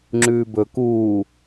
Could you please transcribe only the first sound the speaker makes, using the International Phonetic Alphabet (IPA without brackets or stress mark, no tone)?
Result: ŋ͡ǁ